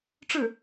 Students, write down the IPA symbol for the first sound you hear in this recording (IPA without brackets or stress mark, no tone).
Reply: ʈ͡ʂ